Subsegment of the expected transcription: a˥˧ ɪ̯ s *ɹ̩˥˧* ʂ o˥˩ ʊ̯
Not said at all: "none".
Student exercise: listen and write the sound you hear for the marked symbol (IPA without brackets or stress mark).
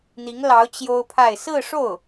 ɹ̩˥˧